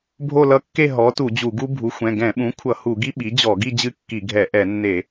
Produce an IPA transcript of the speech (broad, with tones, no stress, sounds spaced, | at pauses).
bʱ o˥˧ l ʌ˦˥ kː e˥˧ ɦ ɔ˩˥ t u˧˩˧ d͡ʑ u˧˩˧ ɡ u˦˥ bʱ u˩˥ xʷ ɛ̃˩˧˩ ɡ ɛ̃˧˩˧ ɓ ũ˩˥ kʷʰ ʌ˧˩˧ h u˧˩˧ ɡ i˦˥ ɓ i˩˥ d͡ʑ ɔ˧˩˧ ɡ i˥˧ d͡ʑ ɨ˦˥ kː i˧˩˧ ɡʱ ɛ˧˩˧ ʔ ɛ˧˩˧ nː e˧˩˧